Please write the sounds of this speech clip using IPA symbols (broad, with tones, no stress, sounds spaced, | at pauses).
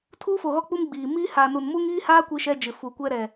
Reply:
tʰ uː˦ f o˨ ɣ ɔ˦ k͡p u˦ m ɡ͡b iː˨ m iː˦ h aː˨ n u˨ n m u˦ ŋ iː˦ h aː˦ kʷ i˦ ʃ ɛ˦ d͡ʒ ɪ˨ f u˨ kʷ ɛ˦ ɾ ɛ˨